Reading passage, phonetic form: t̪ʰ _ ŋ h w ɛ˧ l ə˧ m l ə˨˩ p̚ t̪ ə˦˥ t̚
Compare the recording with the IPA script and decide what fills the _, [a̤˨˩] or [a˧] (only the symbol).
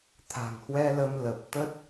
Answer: a̤˨˩